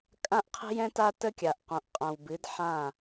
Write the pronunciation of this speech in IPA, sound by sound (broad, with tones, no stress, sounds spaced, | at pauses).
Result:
kʼ ã˦ ʔ qʰ ə̤˦ j ɛ̃˦ t a˦ t ə˦ kʲ a˨ ʔ q õ˨ ʔ qʼ ã˨ w b ɨ˨˦ d ħ ã˦˨